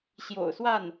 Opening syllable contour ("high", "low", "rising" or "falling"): low